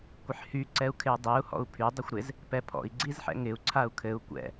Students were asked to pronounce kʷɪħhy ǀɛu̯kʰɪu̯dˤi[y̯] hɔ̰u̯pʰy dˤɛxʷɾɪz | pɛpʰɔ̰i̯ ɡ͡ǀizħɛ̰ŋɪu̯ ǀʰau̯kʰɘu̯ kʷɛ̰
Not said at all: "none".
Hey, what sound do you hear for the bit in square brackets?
u̯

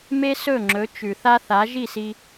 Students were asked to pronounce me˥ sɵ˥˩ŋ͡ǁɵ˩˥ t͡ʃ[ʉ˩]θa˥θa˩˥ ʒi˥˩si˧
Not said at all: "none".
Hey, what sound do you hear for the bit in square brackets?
ʉ˩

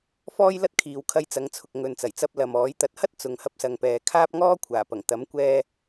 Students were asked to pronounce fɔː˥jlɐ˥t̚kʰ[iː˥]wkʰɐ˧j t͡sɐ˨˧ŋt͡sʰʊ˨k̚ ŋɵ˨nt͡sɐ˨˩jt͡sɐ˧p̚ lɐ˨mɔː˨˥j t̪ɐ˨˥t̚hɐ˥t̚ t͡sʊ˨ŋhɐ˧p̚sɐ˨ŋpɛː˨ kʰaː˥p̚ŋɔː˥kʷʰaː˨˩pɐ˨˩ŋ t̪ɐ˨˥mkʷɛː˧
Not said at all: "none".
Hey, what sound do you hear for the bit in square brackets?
iː˨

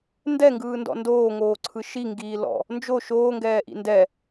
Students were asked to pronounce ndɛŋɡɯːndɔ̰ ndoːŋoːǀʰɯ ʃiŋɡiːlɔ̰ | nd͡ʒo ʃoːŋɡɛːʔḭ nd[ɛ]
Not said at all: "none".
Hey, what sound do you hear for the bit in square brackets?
ɛ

